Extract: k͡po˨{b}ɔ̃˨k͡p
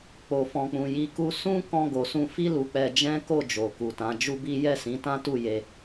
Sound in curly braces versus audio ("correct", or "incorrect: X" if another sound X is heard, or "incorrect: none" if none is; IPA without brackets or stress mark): incorrect: f